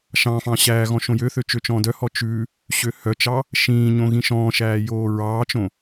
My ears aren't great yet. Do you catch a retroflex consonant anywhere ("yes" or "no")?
no